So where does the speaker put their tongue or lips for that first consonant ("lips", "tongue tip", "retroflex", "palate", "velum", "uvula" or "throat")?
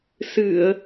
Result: tongue tip